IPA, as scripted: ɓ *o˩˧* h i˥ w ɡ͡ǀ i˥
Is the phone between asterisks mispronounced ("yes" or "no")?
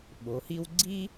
no